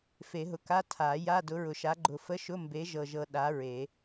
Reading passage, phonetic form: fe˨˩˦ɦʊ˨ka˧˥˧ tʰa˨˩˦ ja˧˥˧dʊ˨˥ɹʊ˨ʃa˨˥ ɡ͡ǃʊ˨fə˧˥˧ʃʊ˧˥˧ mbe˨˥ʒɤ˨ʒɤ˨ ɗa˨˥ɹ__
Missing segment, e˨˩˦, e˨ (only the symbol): e˨˩˦